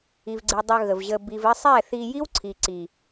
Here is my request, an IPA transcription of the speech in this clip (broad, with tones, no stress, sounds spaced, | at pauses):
i˨ v ɡ͡ǀ i˨ dˤ œ˧ ɣ ə˨ v ʑ ə˧ b i˨ v ɘ˧ sˤ ɛ˦˨ θ i˧ j i˦ w ǀʰ i˨ ǀ i˨